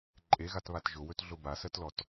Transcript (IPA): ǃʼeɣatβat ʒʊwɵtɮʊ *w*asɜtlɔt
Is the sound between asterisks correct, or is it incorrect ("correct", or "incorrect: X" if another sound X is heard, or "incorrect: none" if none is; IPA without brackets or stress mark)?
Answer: incorrect: b